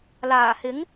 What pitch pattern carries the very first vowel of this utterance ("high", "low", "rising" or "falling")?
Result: low